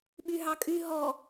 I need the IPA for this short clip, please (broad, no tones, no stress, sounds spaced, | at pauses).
ɓ y ɦ ɑ kʼ y ɦ ɔ